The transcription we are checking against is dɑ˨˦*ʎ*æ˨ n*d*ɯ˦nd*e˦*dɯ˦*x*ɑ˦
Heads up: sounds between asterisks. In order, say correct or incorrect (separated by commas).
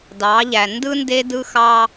correct, correct, correct, correct